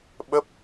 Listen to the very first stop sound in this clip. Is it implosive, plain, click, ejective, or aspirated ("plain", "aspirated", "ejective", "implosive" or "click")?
implosive